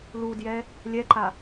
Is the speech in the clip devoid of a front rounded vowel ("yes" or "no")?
yes